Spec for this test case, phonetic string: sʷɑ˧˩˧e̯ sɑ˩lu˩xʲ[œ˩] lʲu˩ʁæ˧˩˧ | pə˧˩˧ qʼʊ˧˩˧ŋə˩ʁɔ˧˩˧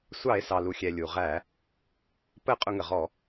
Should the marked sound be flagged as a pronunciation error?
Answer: yes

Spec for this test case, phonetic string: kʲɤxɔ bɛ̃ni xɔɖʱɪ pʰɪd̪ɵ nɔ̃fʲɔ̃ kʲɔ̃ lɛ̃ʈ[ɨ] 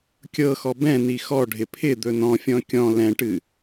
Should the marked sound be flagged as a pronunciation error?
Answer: no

